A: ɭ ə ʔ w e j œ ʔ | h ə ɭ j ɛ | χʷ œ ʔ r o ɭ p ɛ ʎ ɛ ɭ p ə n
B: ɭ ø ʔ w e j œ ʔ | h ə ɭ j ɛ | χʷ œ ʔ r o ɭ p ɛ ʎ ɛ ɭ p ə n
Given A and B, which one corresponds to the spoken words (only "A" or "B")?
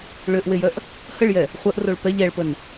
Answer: B